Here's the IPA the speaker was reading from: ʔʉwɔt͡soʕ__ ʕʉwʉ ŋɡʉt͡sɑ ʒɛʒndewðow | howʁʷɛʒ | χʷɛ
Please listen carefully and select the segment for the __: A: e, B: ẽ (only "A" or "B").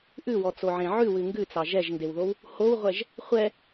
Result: B